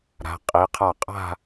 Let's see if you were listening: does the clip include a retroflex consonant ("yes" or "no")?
no